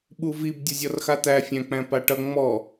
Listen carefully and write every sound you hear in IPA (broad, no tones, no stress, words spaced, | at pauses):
ɓuvib dʲʌzʲɔrxat̪æ fʲæ̃k͡pæ̃paʈʌ ŋ͡mɔ